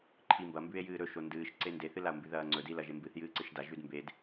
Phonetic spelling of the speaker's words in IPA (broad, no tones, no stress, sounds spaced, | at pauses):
ǃʰ i m b ɐ m b ʉ e̯ j ɨː ɾ ɵ ʃ o n d ɨː ʃ ǀ e n d e θ ɨ l a o̯ m b ʉ ð ɐː ŋ͡ǀ ɵ d i l ɐ ʒ e m b ɨ θ j ɨː ǀ ɨ ʃ d a ʒ ʉ d m b e d